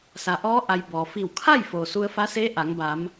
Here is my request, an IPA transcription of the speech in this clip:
sa˩ʔɔː˧˥ ʔa˧j bɔː˩ fi˧˩w kʰa˥˨j foː˩su˧ə̯fa˧˥seː˧˥ ʔa˩˧ŋ ba˩˧m

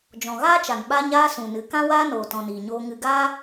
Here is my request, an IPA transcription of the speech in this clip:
d͡ʒɔ̃˨ɣaː˦t͡ʃa˨n ɓa˧ɲaː˧ sũ˨nɨ˨˦ kã˦ waː˦noː˨ tɔ̃˨ niː˨ɲoː˧ ŋɨ˧ ɡaː˦

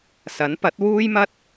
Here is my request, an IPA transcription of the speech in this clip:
sɐ˨˥n pɐ˨˥t̚wuː˥jmɐ˥t̚

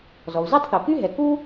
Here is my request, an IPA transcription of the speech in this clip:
zɔ˩u̯za˥tˤθo˩ky˥ ɦɛ˩ku˥

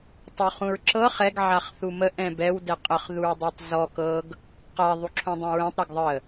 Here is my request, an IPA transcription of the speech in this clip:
tˤoχũɹǁɤ χɛɡ ʕaχθumə ʔɛ̃bɛw dɛqʼəχ ðuɹdˤɛtˤzɔ kɤɡ | qa ðˤuǁʰõdˤũɹɛ̃tˤ ɾaɡðˤə

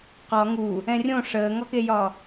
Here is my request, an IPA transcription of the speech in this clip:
qɒ ŋu | ɛ̃rʲõ ʂəːŋɒkejɒ

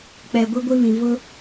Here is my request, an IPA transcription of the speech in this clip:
k͡pɛ˨ ɡʷi˦ɡʷi˦βĩ˨ vʊ˦

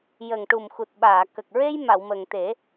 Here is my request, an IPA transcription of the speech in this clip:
jə˨˩ŋʈu˨˩mxu˨˩t̚ɓaː˨˩˨ kə˨˩k̚ɹe˧j ma˨˩˨wmə˨˩ŋt̪e˨˩˦

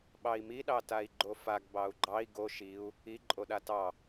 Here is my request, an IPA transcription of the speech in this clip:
ɓɑi̯mi ɗɑtai̯ɡ͡ǃofaɡ bɑu̯ɡ͡ǃɑi̯ ɡo ʃiu̯ | i ǃʼoɗatɑ

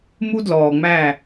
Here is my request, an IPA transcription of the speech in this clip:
mu˦dlɔː˨ŋ͡mæ˦˨

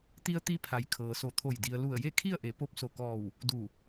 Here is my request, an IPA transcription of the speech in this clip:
t̪i˧ə̯t̪i˧pʰa˩j kʰɤː˩so˧˩t̪ʰo˧˩j di˩ə̯lu˧˩ə̯ je˥˨kʰi˥˨ə̯ʔe˩˧ po˧p̚so˧˩kɔː˧˩w | du˧˩

